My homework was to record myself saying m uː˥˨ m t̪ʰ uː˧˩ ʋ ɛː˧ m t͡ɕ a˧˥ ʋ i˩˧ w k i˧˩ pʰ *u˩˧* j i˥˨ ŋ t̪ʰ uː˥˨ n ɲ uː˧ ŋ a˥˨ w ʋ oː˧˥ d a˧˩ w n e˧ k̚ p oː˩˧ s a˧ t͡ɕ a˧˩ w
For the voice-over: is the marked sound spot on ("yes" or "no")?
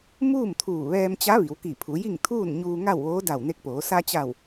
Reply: yes